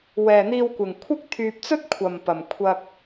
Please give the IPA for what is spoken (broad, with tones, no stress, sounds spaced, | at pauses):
w ɛː˨ n̪ iː˧ w kʷ ɪ˨ ŋ kʷʰ ɪ˥ k̚ t̪ʰ yː˧ p̚ t͡s ɵ˥ t̚ kʷʰ ɐ˨ m p ɐ˨ m kʷʰ ɐ˧ k̚